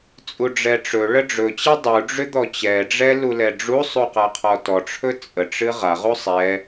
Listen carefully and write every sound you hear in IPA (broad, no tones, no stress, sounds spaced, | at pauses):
t͡sʼ u ɖ͡ʐ ɛ ʈ͡ʂ ɵ ɭ ə ɖ͡ʐ ɵ t͡ɕ ɛ dˤ u ɖ͡ʐ ʏ d̪ ɔ t͡ɕ ɛ ɖ͡ʐ ɛ l u l ɛ ɖ͡ʐ u sˤ u q a qʰ ɔ t ɔ ʈ͡ʂʰ ɵ t͡sʼ ə ʈ͡ʂ ɨ ʁ a ʁ u sˤ ɛ